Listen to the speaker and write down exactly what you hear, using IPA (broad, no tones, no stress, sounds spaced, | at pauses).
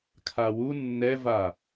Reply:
kʰ a w u nː ɛ v a